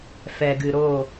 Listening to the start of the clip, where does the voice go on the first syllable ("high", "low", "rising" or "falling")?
low